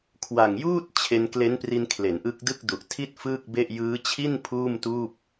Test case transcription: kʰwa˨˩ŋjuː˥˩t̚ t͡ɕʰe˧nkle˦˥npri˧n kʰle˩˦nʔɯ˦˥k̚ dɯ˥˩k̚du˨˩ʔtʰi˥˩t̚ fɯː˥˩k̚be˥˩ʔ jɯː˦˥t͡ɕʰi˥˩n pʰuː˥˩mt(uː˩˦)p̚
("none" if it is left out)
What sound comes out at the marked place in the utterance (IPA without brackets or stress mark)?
uː˥˩